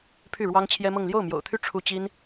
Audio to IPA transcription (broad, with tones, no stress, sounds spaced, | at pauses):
pʰ y˥˩ ɻ w ɑ˥ ŋ t͡ɕʰ j ɛ˥ m ɤ˥˧ ŋ l j o˥˩ ʊ̯ m j o̰˨˩ ʊ̯ t̪ʰ y˥˩ ʈ͡ʂʰ u˥ t͡ɕ i˥ n